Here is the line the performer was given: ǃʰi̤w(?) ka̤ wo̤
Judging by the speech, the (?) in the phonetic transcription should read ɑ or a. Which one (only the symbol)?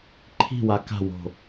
a